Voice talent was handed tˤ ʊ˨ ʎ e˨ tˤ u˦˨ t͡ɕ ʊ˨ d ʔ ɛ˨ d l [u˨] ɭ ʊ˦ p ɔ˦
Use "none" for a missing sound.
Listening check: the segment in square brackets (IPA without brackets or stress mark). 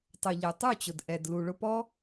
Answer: u˨